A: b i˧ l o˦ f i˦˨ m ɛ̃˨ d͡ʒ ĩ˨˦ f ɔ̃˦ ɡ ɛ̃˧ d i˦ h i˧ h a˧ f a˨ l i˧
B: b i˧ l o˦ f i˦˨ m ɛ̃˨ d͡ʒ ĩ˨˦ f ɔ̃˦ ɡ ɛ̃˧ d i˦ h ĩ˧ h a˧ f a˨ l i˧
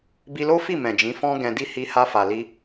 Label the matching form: A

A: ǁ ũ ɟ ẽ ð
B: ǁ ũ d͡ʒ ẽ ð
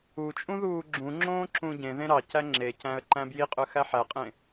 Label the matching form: A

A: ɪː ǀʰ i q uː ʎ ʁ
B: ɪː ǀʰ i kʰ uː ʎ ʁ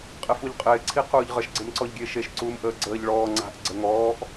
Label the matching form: A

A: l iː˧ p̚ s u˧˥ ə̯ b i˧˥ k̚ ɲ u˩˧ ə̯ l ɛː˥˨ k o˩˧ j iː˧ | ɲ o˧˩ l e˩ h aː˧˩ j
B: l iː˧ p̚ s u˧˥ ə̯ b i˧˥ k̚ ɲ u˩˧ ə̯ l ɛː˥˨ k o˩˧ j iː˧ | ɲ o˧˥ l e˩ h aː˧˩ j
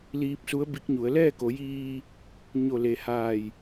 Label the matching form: A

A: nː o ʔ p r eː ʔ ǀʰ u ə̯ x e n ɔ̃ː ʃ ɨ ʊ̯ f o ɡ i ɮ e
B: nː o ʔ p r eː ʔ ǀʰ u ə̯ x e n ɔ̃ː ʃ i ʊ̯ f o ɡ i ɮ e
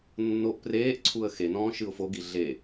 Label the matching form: A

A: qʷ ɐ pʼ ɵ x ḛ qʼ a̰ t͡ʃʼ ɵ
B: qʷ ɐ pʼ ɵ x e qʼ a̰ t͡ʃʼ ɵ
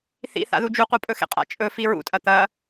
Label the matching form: A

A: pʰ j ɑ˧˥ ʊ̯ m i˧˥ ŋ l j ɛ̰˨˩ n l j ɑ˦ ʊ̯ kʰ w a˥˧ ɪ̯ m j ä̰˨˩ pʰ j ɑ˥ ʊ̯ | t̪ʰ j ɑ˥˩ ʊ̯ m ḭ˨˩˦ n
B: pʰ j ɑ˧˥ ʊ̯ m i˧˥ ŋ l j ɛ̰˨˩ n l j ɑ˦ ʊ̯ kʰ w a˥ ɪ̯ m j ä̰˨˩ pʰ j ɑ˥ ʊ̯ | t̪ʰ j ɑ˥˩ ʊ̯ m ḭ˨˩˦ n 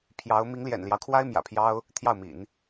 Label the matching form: B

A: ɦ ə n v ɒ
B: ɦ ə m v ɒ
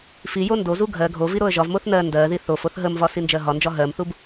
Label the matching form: B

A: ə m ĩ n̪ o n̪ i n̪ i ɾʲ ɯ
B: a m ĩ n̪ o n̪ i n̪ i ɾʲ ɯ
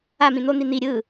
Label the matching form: B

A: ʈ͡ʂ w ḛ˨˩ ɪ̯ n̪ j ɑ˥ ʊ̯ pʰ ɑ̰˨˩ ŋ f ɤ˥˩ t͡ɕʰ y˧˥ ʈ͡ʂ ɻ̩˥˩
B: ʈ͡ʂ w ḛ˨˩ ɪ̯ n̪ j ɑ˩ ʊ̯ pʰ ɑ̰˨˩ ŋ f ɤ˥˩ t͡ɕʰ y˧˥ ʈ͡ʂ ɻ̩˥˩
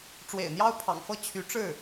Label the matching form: A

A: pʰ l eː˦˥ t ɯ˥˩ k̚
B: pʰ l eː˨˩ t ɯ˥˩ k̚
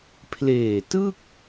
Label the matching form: B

